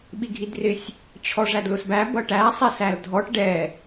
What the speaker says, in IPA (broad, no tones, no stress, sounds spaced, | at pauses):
ɓ i ɡʱ i d r ɪ sʲ | t͡ɕʰ ɔ ʐ æ d l ʊ s b æ b ʌ ʈ æ sˤ ɛ s æ l dʱ ɔ ʈ ɖ ɛ